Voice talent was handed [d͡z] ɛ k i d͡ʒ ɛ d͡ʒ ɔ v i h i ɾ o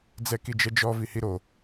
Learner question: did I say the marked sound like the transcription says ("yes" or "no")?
yes